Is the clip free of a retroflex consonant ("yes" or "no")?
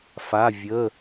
yes